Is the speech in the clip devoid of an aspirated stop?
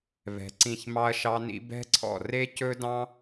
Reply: no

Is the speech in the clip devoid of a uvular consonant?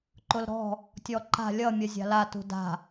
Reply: yes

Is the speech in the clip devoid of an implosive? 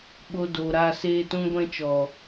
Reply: no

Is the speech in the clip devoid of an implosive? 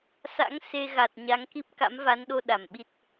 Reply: no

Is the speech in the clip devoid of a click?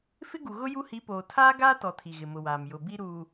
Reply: yes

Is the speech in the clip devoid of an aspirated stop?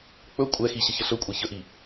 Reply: yes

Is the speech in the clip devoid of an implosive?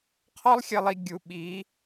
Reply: no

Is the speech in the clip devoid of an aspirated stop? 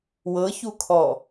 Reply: no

